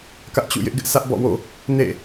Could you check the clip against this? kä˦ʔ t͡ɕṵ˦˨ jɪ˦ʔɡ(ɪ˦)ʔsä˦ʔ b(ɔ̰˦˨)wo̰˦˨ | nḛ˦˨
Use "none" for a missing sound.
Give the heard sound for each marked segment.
ɪ˦, ɔ̰˦˨

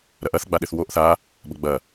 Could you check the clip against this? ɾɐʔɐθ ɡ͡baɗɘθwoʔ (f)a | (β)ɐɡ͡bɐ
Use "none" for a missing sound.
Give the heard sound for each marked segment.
θ, b

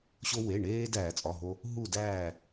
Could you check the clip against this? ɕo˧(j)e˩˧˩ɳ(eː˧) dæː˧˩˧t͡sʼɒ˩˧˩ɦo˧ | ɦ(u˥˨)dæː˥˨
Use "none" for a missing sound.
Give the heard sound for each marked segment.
w, eː˧, u˥˨

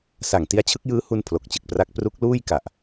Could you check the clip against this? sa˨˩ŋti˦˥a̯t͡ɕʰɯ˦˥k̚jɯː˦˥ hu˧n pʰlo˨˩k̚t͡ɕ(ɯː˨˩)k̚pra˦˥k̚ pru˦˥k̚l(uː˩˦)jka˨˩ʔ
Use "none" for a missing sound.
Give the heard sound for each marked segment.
ɯ˨˩, uː˥˩

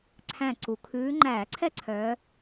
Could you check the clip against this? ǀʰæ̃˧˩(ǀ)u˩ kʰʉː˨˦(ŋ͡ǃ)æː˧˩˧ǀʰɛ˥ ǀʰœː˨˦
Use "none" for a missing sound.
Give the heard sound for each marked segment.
ǀ, ŋ͡ǃ

